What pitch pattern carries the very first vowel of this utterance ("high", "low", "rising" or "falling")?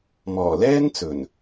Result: low